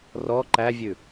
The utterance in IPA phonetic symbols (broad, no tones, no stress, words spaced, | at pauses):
rɔ ǃævʲʉ